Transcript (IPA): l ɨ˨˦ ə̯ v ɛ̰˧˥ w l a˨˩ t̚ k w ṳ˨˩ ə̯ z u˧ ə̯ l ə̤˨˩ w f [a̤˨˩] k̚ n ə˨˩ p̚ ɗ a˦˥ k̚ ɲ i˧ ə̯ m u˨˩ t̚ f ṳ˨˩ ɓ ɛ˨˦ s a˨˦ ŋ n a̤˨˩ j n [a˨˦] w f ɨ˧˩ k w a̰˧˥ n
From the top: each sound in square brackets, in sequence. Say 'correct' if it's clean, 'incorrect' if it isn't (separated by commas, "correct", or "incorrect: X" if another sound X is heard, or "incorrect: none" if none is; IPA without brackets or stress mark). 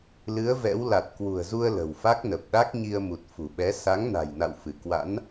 incorrect: a˦˥, incorrect: a̰˧˨